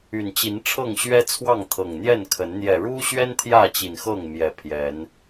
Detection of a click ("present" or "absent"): absent